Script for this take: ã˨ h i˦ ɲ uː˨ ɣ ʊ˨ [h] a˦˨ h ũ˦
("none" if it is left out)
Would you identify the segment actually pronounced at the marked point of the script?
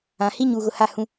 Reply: h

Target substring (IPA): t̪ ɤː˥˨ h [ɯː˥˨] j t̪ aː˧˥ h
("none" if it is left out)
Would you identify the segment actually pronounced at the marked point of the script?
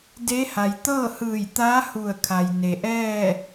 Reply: ɯː˧˩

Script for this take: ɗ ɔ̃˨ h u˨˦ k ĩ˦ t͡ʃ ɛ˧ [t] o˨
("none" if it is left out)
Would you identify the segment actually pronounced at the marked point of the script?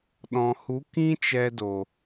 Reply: d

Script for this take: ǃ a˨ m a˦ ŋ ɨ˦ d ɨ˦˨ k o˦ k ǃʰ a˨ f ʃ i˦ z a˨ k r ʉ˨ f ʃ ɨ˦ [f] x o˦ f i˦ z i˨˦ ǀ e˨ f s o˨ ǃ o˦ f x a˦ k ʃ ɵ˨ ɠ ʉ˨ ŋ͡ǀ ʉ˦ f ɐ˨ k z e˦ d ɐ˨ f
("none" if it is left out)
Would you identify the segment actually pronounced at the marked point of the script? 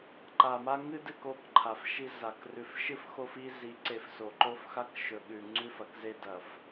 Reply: f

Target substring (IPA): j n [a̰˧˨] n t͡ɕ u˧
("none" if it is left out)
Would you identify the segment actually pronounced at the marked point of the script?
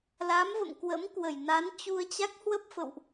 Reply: a˨˦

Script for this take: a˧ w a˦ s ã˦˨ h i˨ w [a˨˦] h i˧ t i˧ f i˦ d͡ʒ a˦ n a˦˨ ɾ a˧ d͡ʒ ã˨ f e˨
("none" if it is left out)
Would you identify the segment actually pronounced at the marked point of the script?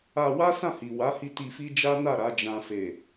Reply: a˨˦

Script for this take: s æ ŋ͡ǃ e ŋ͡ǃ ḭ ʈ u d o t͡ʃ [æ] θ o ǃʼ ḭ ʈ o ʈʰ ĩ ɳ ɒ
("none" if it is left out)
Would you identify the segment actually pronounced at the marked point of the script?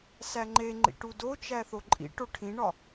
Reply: æ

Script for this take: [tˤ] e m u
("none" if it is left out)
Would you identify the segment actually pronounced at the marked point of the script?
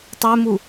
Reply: tˤ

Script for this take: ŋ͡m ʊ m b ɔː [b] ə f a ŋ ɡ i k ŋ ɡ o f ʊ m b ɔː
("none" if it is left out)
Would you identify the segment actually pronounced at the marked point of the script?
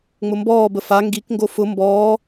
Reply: b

